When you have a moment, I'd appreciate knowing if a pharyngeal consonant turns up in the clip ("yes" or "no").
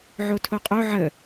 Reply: yes